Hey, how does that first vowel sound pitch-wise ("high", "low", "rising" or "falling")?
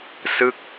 falling